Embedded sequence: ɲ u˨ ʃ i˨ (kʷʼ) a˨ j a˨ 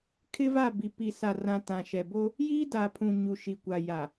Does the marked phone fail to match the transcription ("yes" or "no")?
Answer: yes